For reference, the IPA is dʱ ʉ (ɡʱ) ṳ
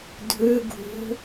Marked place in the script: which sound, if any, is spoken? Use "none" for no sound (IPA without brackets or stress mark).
ɡʱ